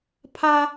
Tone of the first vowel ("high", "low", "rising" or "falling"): high